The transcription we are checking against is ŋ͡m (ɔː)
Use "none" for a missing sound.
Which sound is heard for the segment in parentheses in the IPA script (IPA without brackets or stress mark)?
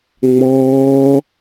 ɔː